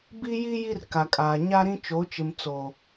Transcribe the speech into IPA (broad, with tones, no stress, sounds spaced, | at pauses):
b i˦ j i˦ j i˦ r k a˨ kʼ aː˨ ɲ a˦ ɾ ĩ˦ t͡ʃ o˨˦ t͡ʃ ɪ˨ m t͡s oː˨